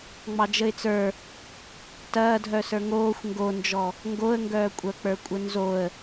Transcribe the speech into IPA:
ŋ͡m ɑ d͡ʒ ə ɪ̯ t͡s ə˞ | t ɐː dʱ œ s ə˞ ŋ oː xʷ ŋ ɡ o n d͡ʒ ɔ | ŋ ɡ o ə̯ ŋ ɡ œː kʷʼ œ k͡p ə˞ kʷʼ ə n z o ə̯

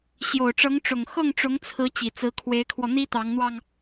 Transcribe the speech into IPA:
ɕ j o˨˩ ʊ̯ ʈ͡ʂ ɤ˧˥ ŋ ʈ͡ʂ ʊ˨˩ ŋ x ɤ˥˩ ŋ ʈ͡ʂ ʊ˧˥ ŋ t͡sʰ ɹ̩˧˥ t͡ɕ i˨˩ t͡s ɹ̩˧˥ kʰ w e˧˥ ɪ̯ kʰ w ɔ˧ n̪ i˥ t̪ ɑ˧˥ ŋ n̪ w ɑ˧ ŋ

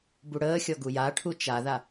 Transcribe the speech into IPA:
b u ɽ əː xʲ ɔ ɡ u j a ʈʰ u t͡ʃ a ð a

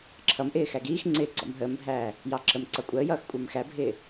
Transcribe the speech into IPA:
ǁʰ ʌ m ʔ ɪː x æ ɡ iː x ŋ͡ǀ ɪː ɡ͡ǀ ɔ̰ m ɦ əː m bʱ æː | j ɑ ǁ ə m ǀ ʌ kʷʼ əː j ʌː x kʷʼ ə˞ m x æ bʱ ɪː

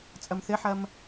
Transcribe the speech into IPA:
t͡sʼ ɐ m θ ɘ ħ ɐ m

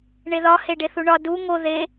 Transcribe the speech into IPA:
ɳ e ð ɒ h e ɖ e θ u ɳ ɒ d u ŋ o ð e

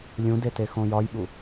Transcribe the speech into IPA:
lʲ ũ d e t e x õ j ɒ j ɓ u

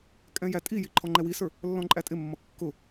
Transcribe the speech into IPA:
kʼ ɛ̃ j æ tʼ i j i ǃʰ ɔ ŋ͡ǃ ɛ w i s ə˞ | lː ɔ̃ ǃʼ æ tʼ ɪ mː ʌ kː ʊ

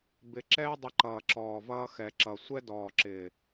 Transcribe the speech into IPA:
b ɪ˧ ǁ ɛː˦ dˤ ɪ˧ ǃ ʌː˨ ǁ ɔː˨ v ʌː˧ x ɛ˨ ǁ ʌ˨ sʷ ɛ˦ d ɔː˨ ǁ ɪː˨

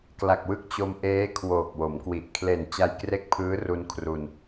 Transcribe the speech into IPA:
k l a˨˩ k̚ w ɯ˥˩ k̚ t͡ɕ o˧ m ʔ eː˦˥ kʰ w oː˨˩ k̚ w o˩˦ m k w i˨˩ ʔ kʰ l e˨˩ n t͡ɕ a˧ j k r e˦˥ k̚ pʰ ɯː˦˥ r u˧ n kʰ r u˧ n

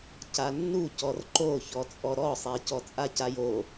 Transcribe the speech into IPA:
c a nː u c ɔ r ǃ o ç ɔ t͡sʼ ɔ ɾ ɔ sˤ ɛ c ɔ t͡sʼ a c a j o

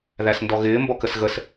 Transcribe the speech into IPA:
ð æ s n d ɔ ɣ ɪː m b ɔ k ə s ɣ ə s

